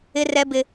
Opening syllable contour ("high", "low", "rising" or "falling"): high